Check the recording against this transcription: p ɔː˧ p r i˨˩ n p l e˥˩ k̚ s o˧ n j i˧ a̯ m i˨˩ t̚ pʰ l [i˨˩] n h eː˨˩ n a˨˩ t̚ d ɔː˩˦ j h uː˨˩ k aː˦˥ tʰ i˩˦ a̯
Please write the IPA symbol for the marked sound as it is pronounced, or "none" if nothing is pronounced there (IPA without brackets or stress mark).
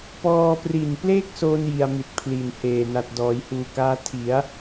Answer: i˨˩